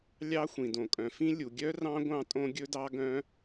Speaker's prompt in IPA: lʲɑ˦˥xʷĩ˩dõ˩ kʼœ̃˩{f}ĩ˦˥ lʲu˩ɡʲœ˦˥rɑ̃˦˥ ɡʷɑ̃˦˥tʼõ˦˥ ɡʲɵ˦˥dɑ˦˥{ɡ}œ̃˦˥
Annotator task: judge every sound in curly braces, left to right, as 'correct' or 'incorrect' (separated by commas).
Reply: correct, correct